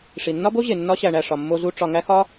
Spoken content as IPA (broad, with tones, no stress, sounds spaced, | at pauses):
ʂ i˨ nː ɒ˦ b o˦ ʑ e˨ nː ɒ˦ ɕ æ˧ ɳ æ˧ ʂ ɒ˧ mː o˦ z u˦ ʈ͡ʂ ɒ˧ ŋ æ˦ x ɒ˦